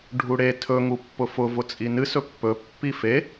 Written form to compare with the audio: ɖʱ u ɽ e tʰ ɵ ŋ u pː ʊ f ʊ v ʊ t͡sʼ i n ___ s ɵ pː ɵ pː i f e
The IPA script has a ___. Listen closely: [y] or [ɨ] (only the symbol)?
ɨ